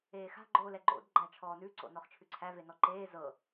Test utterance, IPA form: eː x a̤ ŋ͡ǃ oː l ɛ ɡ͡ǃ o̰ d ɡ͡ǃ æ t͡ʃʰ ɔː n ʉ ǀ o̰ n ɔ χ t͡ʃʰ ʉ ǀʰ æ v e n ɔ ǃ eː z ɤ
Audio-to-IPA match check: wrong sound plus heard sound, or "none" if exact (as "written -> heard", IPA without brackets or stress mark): ŋ͡ǃ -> ɡ͡ǃ